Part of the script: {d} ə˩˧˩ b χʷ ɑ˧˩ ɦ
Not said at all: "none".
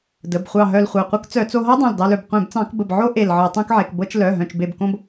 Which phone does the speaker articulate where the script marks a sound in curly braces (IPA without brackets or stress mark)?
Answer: d